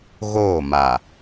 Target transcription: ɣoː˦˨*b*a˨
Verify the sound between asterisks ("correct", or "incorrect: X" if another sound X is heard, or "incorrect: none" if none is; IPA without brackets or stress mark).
incorrect: m